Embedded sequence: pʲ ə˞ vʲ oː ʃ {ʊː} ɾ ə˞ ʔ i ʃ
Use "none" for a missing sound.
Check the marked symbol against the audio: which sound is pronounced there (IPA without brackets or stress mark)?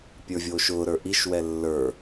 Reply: ʊː